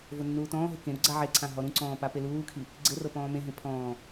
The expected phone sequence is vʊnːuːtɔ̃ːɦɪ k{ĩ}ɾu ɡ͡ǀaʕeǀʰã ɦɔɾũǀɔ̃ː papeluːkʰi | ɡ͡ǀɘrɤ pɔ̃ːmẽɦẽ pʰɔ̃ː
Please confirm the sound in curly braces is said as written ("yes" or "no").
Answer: no